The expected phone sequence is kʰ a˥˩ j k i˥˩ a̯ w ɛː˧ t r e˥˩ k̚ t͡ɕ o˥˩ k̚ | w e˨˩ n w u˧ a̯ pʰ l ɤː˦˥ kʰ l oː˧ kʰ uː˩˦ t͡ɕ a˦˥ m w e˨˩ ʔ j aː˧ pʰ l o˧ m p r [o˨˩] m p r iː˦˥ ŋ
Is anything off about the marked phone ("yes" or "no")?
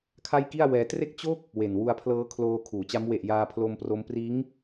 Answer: yes